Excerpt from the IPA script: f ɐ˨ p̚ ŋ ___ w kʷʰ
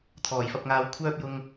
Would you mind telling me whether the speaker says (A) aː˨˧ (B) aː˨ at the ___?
A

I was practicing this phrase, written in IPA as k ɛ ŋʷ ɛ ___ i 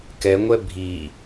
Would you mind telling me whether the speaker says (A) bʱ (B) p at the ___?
A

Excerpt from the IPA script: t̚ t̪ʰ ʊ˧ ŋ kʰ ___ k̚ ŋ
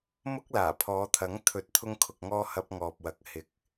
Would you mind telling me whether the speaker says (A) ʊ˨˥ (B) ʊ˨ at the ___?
B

